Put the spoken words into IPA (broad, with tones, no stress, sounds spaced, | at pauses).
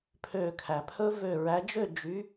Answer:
pʰ ø˧˩ kʰ æ˩ pʰ ɵ˦˥ v ø˧˩ ɹ æ˨˦ d͡ʒ ø˥˨ d͡ʒ y˨˦